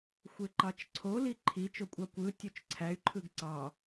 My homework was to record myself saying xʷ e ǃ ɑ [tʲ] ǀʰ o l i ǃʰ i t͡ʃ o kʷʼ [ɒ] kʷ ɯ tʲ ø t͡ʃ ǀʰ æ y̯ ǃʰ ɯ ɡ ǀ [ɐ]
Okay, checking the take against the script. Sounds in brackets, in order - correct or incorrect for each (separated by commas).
incorrect, incorrect, incorrect